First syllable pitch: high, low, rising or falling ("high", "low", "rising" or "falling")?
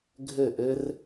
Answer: falling